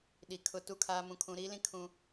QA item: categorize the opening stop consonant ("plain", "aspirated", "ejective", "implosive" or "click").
implosive